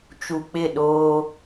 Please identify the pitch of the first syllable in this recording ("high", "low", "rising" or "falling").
low